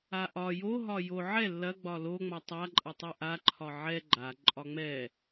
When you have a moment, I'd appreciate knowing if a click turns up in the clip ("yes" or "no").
yes